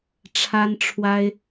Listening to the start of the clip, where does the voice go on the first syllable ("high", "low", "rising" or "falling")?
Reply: high